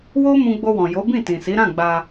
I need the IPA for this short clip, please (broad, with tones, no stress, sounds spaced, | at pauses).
w o˦ m ũ˧ ɡ͡b o˧ w ɔ̃˨ j o˨˦ b ĩ˦˨ t ĩ˨ s i˨˦ ɾ ã˦˨ ɡ͡b a˧